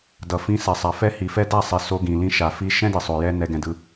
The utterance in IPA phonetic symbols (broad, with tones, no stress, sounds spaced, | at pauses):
d ʌ˨ f ĩ˧ s ɛ˨ sˤ a˨ f ɛ˦ h i˨ f ɛ˦ d a˦˨ sˤ i˨ s o˧ ɡ ĩ˨ l ĩ˧ ʃ a˨ f i˧ ʃ ɛ̃˦ d i˨ sˤ o˨ j ɛ˧ n ɛ˧ ɡ ɛ̃˧ d ɯ˧